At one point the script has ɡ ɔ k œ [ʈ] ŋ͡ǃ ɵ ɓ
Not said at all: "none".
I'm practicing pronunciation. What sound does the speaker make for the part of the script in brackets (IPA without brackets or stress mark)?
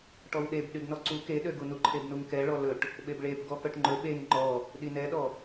ʈ